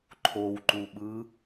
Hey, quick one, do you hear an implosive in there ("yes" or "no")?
yes